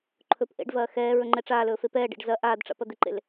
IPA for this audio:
ǃʰ ɵ p ʔ ḛ ɖ v ɐː x ɛː ɹ ɵ ŋ͡ǃ ɛ ʈ͡ʂ aː l ɵː f e p ɛː ɖ ḛ ɖ z ɐ ʔ aː d ʈ͡ʂ a̰ p ɐ d̪ ɪ ǃ ḛ l

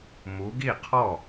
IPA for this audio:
m u˨˦ ɡ i˥˩ qʰ ɔ˥˩

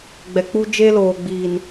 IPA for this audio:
ɡ͡b ɛ˨ k͡p u˦ d͡ʒ eː˦ l oː˨ ɡ͡b iː˨ n

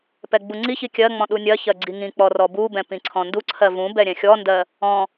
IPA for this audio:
p ɛ ɡ͡b u ŋ͡ǀ i ç i kʲ ɜ ŋ͡m ɔ̃ ɗ u nʲ ɜ ç ɜ ɡ͡ǀ i ŋ ĩ k͡p ɔ r ɔ b u b ɛ̃ p ĩ ǀʰ ɔ̃ n d u ǀʰ ɜ v ũ b ɛ ɾʲ ɛ̃ xʲ ɔ n d ɜ | ɔ̃

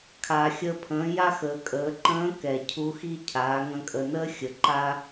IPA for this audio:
kʰ aː˩ xʲ əː˧ pʰ ə̃ː˩˧ j a˥ x əː˩˧ kʼ əː˩˧ ǃ ə̃ː˧˥ k ɛ˩ cʰ u˧˥ x i˥ cʰ aː˩˧ ŋ ə̃˧ kʼ ə˩ n əː˥ xʲ ə˩˧ ǃ a˥

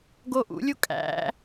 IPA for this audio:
ɡ o ʔ ṵ lʲ u kʼ æ̰

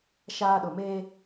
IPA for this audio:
ʃ aː˦ ɗ ʊ˨ m eː˦

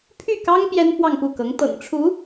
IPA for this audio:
pʰ y˥˩ k ɑ˥ ŋ p j ɛ˥ n f w ɑ˥˧ ŋ p u˥˩ k ɤ˧˥ ŋ t̪ ɤ̰˨˩ ŋ ʈ͡ʂʰ u˧˥

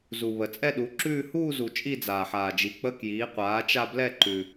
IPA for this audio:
z u˨ β ə˨ t͡sʼ ɛ˥˧ ɗ u˩˥ ǁ ʉː˥˧ h uː˥˧ z u˨ t͡ʃʼ i˥˧ d͡z aː˨ ħ aː˨ d͡ʒ i˩˥ k͡p ə˧˥˧ k j iː˩˥ qʷ aː˩˥ t͡ʃ a˥˧ b l ɛ˥˧ ǃ ʉ˨

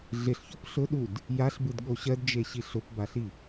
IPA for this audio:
ɮ ɪ ɬ ç o p ɬ ʊ ɗ u d | j a ɬ b ɯ d ɠ o ɕ ɜ d d͡ʒ e ɕ i ɬ ʊ p b a ɬ i

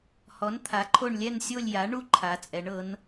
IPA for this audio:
h ɔ˩˥ n t̪ʰ a˩˥ ǃʰ o˦˨ ɳ lʲ ɛ˦˨ n sʲ o˦˨ lʲ j a˩˥ ɳ u˦˨ ǃʰ a˩˥ t͡sʼ ɛ˩˥ ɳ ɤ˩˥ n

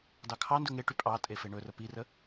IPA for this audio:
d ɑ kʰ ɑ n d ɵ ŋ e ʈ y pʼ ɑ tʼ e f e ɳ ɵ r ə p i r ə

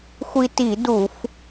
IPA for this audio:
xʷ i˧ t i˧˩˧ d u˧˩˧ f

